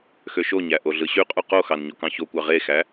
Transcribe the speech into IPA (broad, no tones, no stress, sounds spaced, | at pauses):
x ø ʃ o ɲ æ ʔ o ɮ ɯ ɕ y qʼ u q o x ɑ n ɲ o k ɑ̃ ç o kʷ ɑ ʁ e x æ